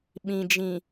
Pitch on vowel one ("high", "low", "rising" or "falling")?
low